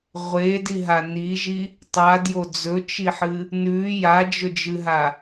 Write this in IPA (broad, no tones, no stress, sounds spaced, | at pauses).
ʁʷ e d i ɦ a n i ʒ i | tˤ a d j o d͡z ɵ t͡ʃ i ħ ɨ | n ʉ j a d͡ʒ ɵ d͡ʒ ɨ ɦ a